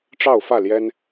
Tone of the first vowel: falling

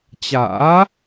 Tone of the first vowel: rising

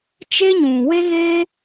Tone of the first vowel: high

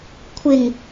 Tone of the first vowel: low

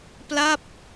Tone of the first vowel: falling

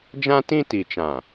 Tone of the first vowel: high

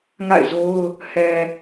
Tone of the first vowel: falling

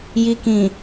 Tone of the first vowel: low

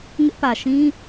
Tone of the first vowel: high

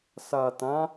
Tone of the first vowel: low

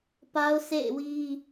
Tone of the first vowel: high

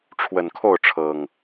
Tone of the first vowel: low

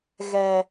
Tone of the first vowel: low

